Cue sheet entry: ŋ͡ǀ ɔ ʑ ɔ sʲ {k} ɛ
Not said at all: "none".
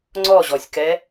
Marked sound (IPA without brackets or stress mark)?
k